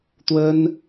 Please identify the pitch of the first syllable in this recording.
high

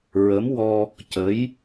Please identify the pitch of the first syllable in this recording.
rising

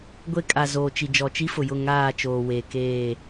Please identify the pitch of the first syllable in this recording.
high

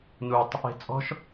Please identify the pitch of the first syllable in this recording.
low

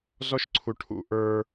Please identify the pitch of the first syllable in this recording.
high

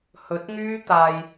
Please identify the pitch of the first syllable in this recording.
rising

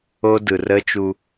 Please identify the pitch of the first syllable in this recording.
high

